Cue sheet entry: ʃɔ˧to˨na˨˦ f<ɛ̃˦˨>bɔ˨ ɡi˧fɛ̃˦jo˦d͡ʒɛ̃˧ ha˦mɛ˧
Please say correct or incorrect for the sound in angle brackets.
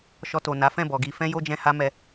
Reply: correct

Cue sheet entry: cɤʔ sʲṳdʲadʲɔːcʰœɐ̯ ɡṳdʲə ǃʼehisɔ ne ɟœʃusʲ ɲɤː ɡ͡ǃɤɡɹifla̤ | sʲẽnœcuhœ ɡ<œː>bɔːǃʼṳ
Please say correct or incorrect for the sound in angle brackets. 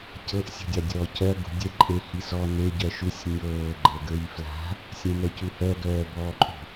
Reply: correct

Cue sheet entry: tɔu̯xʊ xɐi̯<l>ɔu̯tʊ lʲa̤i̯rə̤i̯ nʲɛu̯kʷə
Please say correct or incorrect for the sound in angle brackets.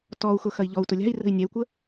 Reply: incorrect: ʎ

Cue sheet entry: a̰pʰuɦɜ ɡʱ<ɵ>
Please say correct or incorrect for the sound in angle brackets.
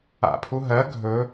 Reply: correct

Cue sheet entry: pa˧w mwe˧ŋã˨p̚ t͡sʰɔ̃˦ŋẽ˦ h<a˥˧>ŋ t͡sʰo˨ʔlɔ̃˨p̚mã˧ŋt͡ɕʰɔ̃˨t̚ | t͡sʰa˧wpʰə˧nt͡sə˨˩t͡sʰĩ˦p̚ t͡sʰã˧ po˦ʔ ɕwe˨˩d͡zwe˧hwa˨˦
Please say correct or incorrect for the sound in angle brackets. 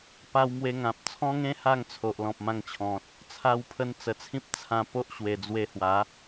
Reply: correct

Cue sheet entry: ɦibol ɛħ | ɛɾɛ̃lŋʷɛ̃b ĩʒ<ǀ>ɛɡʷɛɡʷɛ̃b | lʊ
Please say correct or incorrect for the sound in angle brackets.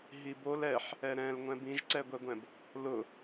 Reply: correct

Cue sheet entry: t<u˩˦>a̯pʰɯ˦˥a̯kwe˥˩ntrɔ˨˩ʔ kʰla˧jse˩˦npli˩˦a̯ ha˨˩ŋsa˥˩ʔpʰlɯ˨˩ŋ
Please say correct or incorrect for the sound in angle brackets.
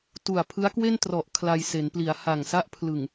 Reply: incorrect: u˨˩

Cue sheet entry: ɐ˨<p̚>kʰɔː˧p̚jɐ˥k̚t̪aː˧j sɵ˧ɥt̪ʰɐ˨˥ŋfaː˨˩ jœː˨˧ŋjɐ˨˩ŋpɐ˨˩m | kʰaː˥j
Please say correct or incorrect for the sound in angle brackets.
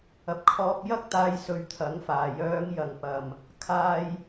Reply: correct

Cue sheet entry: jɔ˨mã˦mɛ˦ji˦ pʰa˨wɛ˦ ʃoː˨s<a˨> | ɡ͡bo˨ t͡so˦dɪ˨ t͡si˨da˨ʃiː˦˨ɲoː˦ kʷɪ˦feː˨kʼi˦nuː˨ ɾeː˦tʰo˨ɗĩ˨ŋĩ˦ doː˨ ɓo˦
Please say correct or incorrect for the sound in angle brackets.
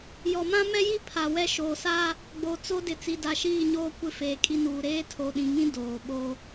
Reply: incorrect: a˦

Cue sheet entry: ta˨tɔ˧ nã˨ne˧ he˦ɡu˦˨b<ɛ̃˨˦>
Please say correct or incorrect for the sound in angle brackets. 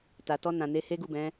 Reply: correct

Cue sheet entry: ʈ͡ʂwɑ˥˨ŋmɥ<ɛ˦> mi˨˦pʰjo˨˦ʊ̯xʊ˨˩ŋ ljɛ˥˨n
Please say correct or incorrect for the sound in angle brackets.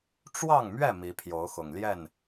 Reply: incorrect: ɛ˥˨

